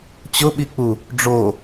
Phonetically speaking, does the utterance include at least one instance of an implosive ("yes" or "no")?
yes